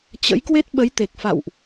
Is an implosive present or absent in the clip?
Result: present